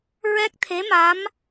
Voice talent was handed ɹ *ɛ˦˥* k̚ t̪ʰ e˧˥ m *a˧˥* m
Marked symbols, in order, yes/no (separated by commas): yes, yes